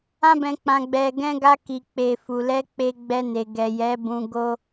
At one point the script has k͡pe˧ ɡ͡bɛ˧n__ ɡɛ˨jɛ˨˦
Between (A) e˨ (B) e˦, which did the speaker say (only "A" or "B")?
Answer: A